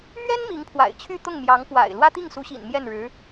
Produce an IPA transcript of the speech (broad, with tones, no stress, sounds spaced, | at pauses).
m ɥ ɛ˥ n m i˧˥ ŋ pʰ w a̰˨˩ ɪ̯ t͡ɕʰ y˥˧ t̪ ʊ˥˩ ŋ m j ɑ˧˥ ŋ p w a̰˨˩ ɪ̯ l w ä˥ t̪ i˥˩ ŋ s u˧˥ ɕ ḭ˨˩ n m j ɛ˥˩ n ɻ ɻ̩˧˥